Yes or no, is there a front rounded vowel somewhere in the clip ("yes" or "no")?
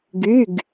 yes